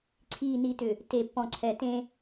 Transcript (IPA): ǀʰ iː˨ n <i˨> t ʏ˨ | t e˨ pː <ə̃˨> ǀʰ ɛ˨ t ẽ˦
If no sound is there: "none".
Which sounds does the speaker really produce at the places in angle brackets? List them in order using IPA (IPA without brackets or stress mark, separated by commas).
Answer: i˨, ɔ̃˨